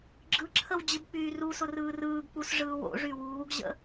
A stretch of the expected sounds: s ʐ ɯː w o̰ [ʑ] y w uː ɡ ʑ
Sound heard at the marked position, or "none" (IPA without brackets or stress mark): ʐ